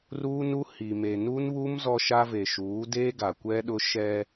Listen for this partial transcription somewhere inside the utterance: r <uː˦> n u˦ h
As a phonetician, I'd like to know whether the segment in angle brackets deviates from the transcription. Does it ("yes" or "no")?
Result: no